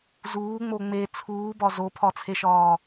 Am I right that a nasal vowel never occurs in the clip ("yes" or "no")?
yes